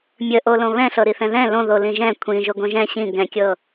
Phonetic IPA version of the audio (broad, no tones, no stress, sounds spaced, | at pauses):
mʲ ə ʔ o l õ β ɛ̃ ɬ ɤ ɾ i θ ɛ̃ ð ɛ̃ l õ ð o l ĩ ʒ ɛ̃ kʷʰ ĩ ʒ o ɡ õ ʒ ɛ̃ ɕ ĩ ɡ ɛ̃ kʲ ɤ